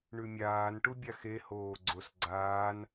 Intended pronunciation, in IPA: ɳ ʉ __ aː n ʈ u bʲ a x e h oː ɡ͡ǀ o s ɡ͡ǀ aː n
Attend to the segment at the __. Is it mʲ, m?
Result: mʲ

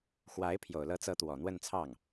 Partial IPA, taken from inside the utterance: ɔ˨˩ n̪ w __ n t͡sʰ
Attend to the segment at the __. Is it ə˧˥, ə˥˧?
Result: ə˥˧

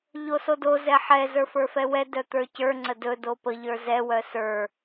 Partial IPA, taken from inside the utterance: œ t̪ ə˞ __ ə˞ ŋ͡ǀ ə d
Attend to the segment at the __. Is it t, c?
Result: c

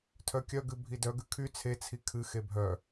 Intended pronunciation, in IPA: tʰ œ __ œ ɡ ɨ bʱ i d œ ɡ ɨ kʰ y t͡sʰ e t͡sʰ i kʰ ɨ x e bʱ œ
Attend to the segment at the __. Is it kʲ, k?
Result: kʲ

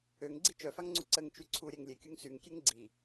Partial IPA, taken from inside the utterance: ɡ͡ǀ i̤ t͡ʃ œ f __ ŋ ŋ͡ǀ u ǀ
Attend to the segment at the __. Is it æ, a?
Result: a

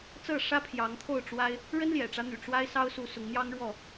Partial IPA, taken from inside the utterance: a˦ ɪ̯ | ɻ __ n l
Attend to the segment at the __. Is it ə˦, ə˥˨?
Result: ə˦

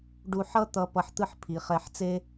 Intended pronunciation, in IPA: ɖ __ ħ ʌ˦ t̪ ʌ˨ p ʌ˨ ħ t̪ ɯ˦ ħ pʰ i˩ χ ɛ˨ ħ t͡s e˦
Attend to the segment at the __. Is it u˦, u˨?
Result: u˨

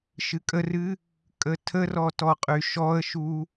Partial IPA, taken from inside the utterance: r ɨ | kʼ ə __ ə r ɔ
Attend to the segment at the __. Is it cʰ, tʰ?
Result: tʰ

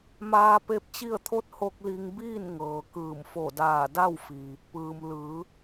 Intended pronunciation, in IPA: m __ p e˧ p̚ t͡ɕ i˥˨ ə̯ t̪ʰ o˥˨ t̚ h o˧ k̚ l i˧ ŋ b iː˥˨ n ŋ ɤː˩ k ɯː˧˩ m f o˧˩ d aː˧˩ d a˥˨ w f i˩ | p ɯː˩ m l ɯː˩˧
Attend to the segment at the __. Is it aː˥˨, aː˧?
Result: aː˧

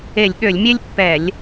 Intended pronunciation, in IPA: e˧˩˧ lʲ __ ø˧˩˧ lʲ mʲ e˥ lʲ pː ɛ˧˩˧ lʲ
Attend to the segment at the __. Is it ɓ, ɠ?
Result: ɠ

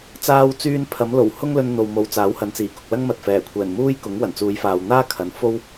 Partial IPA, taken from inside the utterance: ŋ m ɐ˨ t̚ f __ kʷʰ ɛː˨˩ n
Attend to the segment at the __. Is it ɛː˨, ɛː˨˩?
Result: ɛː˨˩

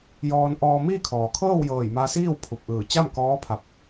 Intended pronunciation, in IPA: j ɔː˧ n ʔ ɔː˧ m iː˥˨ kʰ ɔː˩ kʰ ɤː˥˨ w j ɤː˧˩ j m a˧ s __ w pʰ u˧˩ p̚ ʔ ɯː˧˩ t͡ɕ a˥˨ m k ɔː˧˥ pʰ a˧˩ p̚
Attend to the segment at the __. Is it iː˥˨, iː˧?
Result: iː˥˨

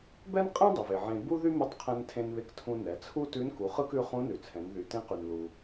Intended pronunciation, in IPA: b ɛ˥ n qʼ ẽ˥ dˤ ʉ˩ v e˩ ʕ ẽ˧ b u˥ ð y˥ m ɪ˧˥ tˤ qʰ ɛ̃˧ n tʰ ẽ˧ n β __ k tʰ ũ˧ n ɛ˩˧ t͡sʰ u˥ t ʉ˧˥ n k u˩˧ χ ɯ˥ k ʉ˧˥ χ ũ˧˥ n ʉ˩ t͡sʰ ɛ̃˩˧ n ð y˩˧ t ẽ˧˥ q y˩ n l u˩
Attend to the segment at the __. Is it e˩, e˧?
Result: e˧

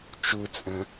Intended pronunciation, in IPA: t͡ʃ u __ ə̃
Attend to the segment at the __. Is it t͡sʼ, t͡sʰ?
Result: t͡sʼ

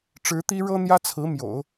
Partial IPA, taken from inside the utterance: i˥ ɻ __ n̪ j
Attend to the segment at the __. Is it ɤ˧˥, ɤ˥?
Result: ɤ˥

